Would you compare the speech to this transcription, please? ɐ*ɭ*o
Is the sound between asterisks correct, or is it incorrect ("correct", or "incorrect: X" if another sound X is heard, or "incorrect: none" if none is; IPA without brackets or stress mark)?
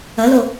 incorrect: l